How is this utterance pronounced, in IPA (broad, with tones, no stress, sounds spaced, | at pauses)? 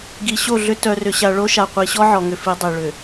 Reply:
ɡ i˨ ɕ o˦˨ ɮ ʏ˦ t œ˨ r ʏ˨ ɕ a˨ ɭ o˦ ʃ a˨ qʷ i˨ ɕ ɔ˦ ʕ ɔ˨ ŋ ʏ˨ f i˨˦ dˤ i˨ ɭ ʏ˨